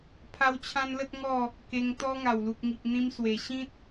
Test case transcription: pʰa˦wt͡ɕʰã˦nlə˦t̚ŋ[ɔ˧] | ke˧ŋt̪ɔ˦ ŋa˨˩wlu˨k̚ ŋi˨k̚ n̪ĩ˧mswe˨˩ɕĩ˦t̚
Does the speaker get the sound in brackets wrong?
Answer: yes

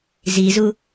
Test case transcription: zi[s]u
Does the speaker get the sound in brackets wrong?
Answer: yes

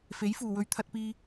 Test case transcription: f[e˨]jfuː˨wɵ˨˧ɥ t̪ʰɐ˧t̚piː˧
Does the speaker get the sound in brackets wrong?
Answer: yes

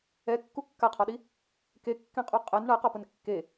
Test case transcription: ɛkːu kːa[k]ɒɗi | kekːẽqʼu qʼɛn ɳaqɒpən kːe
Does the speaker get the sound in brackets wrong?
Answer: yes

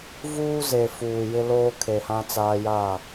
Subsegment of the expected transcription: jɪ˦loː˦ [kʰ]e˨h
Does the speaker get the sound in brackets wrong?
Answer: no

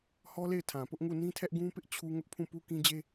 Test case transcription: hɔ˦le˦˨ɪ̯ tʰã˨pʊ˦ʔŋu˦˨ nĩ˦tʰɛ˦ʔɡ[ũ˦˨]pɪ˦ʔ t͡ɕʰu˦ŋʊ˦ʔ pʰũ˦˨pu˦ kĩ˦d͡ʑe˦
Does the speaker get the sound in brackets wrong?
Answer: yes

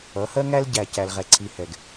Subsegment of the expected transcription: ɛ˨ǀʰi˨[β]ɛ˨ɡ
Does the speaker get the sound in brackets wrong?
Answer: yes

